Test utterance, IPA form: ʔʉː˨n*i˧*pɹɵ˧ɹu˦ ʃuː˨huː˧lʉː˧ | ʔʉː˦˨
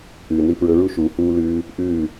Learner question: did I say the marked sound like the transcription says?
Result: yes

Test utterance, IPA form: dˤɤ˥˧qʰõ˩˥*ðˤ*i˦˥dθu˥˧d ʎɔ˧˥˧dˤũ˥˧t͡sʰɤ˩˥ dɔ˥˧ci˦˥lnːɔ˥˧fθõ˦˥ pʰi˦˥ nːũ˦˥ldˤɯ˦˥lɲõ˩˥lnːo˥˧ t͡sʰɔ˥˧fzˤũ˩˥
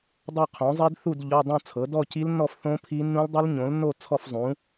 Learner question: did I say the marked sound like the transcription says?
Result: no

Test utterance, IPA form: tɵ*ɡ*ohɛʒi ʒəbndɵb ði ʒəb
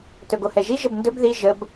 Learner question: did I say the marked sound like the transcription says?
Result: yes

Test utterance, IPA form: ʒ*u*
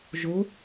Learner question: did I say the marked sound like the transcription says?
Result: no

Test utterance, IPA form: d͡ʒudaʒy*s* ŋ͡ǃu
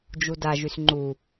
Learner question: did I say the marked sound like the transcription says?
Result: yes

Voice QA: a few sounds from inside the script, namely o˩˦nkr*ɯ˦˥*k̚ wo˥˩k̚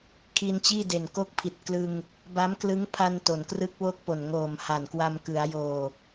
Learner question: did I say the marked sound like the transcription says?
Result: yes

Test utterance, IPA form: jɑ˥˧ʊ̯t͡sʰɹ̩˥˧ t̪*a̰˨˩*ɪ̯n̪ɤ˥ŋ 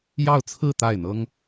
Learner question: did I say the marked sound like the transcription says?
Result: no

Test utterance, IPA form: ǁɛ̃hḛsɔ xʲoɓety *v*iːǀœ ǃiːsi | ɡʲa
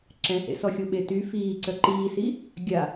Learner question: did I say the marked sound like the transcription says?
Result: no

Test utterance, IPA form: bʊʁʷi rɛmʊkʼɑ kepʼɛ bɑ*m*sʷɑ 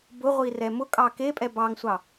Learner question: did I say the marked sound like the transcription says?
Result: no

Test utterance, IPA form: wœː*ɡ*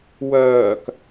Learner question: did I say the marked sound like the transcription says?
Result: no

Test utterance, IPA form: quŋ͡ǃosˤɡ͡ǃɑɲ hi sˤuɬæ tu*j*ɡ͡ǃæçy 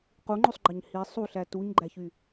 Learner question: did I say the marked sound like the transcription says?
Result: no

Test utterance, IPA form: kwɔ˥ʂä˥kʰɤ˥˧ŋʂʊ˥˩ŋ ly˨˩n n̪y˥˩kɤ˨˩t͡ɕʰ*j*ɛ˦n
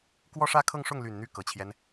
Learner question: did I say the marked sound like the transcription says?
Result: yes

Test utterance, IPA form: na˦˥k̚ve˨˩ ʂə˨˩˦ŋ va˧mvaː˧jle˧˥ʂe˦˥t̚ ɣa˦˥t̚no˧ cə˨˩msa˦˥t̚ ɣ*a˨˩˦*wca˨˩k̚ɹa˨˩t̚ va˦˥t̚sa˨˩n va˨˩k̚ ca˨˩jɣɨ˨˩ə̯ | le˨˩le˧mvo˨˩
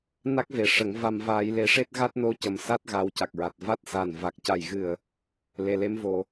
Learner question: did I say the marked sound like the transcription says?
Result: yes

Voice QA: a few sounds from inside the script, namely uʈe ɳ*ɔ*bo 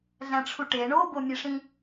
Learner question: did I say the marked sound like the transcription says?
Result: no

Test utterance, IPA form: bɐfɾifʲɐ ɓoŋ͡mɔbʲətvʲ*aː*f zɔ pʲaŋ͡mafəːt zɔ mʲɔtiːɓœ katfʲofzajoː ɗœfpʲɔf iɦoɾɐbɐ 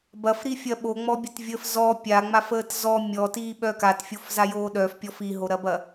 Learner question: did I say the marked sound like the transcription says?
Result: no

